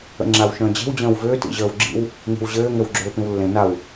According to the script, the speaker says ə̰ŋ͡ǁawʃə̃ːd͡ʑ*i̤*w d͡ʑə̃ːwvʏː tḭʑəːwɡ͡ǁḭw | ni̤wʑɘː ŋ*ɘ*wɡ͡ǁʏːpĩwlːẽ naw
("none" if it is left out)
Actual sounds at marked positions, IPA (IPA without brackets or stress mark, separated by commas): e̤, ɘ